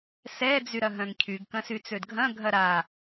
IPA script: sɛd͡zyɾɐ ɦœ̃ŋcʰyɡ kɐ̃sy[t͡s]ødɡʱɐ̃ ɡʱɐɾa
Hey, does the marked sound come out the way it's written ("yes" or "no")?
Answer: yes